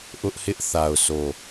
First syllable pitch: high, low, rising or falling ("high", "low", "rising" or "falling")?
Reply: high